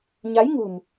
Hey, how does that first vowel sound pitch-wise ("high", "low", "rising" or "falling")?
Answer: rising